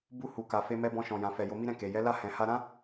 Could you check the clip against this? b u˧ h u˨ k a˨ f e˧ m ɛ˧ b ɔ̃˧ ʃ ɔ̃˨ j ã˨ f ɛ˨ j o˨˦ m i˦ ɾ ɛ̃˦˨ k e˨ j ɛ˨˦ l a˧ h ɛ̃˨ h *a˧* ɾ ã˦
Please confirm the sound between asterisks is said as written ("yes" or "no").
yes